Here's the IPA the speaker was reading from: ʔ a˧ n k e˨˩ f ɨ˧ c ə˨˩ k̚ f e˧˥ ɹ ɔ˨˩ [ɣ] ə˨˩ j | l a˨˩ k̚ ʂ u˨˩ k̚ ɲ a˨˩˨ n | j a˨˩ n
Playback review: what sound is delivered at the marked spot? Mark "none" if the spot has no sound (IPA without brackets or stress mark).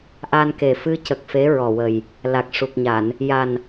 w